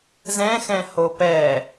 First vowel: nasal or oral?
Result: nasal